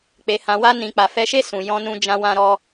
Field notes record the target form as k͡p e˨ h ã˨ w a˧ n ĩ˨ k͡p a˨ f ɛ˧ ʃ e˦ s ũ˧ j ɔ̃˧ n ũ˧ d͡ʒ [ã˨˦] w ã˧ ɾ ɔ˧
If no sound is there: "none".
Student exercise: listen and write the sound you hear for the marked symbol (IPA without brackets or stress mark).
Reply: ã˧